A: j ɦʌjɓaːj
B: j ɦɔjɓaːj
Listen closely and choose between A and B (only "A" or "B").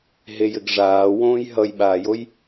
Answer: A